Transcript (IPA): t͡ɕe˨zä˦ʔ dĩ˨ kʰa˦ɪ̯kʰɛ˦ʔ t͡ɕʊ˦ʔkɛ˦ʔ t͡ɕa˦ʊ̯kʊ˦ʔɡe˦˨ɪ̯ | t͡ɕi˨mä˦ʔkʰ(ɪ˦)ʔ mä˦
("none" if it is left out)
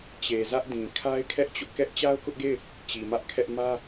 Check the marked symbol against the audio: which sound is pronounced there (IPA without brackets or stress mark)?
ɛ˦